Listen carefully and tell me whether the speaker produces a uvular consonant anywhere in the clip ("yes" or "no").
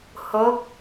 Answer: no